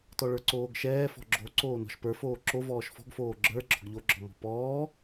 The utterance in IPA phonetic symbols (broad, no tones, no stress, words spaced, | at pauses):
tɔɭə˞ǀoːɡʃɛː fɔ̤ɡ͡ǁo ǀoːnɔ̤ʃpə˞foː ǁovɔːʃ fɔ̤ɡfoː ɡ͡ǁə˞ ɡ͡ǁɔɡʎoɡ͡ǁɔ mɔ̤pɔː